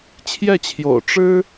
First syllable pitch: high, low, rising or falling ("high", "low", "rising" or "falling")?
falling